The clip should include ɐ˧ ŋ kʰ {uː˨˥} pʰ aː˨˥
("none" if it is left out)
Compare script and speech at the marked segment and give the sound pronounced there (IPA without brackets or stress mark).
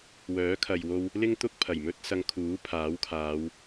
uː˨˥